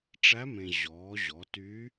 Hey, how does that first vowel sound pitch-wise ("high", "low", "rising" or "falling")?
rising